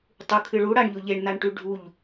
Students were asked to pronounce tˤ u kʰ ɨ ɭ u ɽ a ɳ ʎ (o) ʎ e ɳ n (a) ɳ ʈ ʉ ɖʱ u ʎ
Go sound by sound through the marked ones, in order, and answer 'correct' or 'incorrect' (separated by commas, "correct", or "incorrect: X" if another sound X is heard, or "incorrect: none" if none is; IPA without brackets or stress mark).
correct, correct